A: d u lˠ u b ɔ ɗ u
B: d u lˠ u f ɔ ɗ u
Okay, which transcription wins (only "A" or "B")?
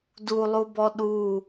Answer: A